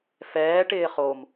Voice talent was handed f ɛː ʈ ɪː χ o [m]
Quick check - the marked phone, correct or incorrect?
correct